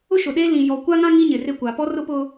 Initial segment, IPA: ʊ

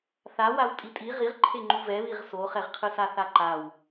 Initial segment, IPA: θ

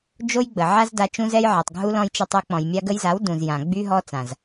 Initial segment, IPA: d͡ʒ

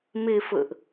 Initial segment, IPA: m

